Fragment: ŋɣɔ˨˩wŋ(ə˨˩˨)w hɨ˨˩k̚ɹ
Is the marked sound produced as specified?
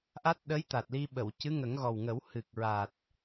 no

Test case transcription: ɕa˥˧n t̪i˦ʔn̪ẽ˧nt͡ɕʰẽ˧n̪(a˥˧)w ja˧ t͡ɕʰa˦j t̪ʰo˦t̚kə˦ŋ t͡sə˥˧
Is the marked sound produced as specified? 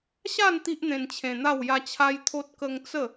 yes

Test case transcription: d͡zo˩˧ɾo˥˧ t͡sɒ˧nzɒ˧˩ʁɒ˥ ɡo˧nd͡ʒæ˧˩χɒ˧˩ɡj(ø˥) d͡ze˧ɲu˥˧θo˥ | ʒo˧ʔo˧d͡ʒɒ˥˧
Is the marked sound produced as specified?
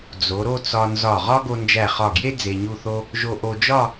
no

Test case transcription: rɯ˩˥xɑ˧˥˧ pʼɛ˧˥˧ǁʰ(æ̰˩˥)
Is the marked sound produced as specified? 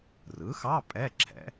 no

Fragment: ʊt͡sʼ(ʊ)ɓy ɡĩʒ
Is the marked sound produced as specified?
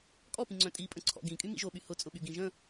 yes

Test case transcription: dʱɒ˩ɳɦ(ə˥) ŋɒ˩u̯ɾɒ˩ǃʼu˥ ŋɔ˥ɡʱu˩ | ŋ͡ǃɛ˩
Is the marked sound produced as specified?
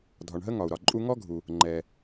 yes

